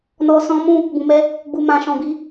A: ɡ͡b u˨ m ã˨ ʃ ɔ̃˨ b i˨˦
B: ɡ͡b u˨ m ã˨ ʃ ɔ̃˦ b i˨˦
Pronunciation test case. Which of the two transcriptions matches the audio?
A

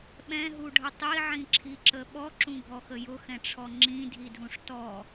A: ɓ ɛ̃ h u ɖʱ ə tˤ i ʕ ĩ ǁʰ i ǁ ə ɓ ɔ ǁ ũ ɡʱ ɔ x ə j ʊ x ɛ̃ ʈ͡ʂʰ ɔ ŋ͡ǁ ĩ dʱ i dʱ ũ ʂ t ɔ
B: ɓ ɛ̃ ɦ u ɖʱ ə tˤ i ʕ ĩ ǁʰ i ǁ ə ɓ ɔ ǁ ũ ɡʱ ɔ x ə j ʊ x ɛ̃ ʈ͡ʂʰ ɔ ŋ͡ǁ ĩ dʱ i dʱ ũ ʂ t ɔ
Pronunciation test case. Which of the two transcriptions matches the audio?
B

